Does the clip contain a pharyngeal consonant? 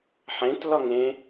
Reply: yes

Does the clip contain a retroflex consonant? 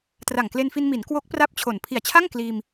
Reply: no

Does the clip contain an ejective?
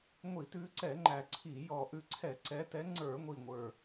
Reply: no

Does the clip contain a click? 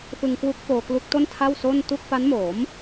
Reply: no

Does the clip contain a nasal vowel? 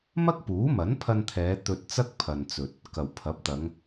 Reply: no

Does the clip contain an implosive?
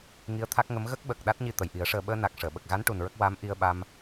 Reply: yes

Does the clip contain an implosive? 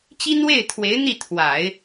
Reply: no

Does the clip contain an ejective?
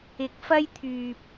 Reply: no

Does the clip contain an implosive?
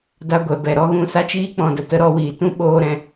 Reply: yes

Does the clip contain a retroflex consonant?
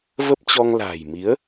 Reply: no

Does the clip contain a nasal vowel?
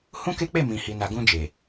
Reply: yes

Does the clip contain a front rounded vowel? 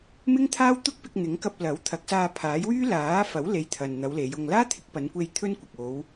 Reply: yes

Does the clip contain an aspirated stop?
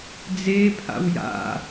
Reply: yes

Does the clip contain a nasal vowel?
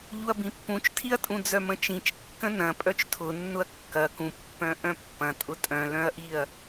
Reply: yes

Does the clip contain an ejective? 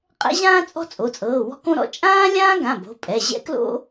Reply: yes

